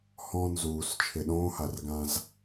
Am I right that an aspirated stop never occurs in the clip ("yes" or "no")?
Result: no